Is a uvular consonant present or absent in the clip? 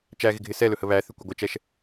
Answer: absent